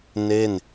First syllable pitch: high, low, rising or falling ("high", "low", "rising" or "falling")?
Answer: falling